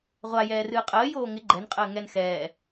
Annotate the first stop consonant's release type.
ejective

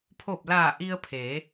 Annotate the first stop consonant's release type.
aspirated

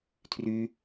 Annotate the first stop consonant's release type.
aspirated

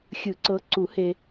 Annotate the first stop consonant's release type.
click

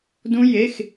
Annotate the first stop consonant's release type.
plain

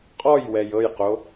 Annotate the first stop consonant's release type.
ejective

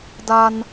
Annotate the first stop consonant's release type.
plain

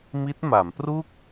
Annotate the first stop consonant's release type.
plain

